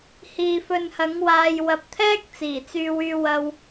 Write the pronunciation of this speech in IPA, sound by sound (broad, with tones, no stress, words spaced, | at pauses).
hiː˧fɵ˧nhɐ˨˥ŋwaː˧j wɐ˨p̚t̪ʰɛː˥k̚ t͡siː˨˩t͡syː˧wyː˧wɐ˧w